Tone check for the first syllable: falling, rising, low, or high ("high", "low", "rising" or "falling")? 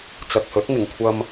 low